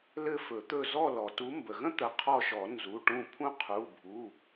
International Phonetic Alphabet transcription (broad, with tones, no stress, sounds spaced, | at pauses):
l ɘ˦˨ f ɵ˨˩˦ t̪ ɵ˦˨ z ɔ˦˨ l ɔ˩ t u˨˦ m b ə˩ ɣ ə̃˥ t̪ ə˩˧˩ qʰ ɔ˦˨ ʃ ɔ˨˩˦ n z u˩˧˩ ʈ ũ˦˨ pʰ ũ˥ qʰ u˩˧˩ bʱ u˩˧˩